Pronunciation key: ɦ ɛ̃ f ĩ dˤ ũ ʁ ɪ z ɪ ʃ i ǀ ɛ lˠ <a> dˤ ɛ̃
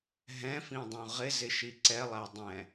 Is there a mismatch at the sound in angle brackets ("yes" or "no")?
yes